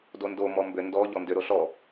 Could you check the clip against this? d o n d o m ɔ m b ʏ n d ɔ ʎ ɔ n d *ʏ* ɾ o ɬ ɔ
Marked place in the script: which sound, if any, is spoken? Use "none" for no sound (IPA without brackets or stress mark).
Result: ʏ